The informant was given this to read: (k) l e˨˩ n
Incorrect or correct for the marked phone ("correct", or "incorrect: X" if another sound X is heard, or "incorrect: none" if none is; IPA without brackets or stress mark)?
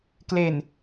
correct